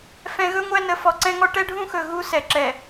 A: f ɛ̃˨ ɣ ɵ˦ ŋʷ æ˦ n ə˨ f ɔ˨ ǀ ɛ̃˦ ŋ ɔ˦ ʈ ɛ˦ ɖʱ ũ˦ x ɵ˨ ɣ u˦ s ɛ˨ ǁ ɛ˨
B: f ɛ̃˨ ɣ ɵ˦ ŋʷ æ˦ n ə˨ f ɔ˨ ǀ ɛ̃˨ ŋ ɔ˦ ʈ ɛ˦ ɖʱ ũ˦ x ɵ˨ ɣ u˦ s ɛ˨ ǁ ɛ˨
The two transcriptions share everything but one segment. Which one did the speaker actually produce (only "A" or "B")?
A